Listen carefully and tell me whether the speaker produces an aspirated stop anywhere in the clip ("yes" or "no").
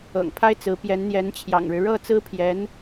yes